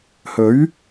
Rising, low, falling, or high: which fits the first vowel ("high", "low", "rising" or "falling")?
rising